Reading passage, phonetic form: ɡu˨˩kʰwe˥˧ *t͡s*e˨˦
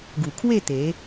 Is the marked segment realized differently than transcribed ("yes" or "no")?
yes